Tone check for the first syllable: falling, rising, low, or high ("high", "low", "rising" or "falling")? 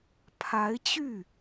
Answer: rising